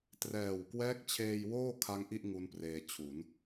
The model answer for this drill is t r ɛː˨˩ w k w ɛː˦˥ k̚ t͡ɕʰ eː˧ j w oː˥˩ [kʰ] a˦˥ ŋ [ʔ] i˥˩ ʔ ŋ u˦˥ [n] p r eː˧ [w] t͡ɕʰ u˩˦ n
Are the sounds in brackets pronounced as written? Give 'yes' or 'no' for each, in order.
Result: yes, yes, yes, no

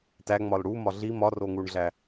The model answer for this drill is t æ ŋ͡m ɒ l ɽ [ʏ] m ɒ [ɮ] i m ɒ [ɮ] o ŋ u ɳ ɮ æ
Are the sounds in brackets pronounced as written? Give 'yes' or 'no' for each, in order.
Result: no, yes, no

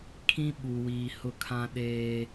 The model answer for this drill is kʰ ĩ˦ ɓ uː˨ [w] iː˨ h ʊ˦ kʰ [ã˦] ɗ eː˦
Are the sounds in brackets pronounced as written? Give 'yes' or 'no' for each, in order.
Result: yes, yes

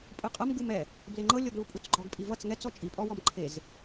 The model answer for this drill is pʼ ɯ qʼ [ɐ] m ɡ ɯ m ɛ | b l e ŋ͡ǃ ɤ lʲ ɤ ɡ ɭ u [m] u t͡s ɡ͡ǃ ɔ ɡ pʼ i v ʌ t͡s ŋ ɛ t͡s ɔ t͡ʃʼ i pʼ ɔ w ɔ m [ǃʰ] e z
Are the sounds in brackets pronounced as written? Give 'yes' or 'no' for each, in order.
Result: yes, no, yes

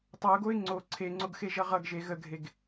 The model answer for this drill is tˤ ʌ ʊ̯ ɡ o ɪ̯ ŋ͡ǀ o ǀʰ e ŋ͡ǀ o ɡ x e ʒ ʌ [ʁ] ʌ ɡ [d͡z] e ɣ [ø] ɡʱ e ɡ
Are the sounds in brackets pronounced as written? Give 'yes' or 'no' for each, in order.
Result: yes, no, no

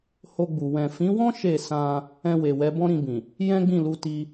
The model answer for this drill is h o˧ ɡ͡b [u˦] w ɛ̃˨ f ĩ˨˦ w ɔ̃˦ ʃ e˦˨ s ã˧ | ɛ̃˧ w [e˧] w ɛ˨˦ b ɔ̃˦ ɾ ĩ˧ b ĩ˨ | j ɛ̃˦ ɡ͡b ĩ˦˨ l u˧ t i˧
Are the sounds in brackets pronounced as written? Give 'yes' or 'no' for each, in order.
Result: no, no

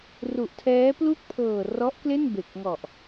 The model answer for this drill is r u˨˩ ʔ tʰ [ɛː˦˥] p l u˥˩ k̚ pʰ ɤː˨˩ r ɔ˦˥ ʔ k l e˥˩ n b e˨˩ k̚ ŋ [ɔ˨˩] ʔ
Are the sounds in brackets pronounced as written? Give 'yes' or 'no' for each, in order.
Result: yes, yes

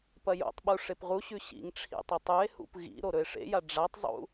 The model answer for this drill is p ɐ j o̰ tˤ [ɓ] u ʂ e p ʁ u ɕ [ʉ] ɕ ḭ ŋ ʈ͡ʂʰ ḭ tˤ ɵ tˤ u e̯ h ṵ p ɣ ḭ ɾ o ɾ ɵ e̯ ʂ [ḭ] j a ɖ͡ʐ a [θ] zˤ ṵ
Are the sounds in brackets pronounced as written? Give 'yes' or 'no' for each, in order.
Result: yes, yes, no, no

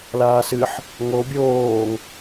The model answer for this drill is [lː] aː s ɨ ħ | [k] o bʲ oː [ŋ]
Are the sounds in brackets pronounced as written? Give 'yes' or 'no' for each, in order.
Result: no, no, yes

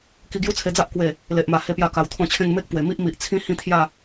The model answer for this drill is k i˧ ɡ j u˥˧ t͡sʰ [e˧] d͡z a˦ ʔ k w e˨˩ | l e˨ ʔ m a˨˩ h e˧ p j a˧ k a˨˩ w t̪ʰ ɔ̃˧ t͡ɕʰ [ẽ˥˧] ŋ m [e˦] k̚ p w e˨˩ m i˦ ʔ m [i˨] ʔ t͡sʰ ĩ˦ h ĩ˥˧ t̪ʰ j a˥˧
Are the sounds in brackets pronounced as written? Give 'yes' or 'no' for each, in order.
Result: yes, yes, yes, yes

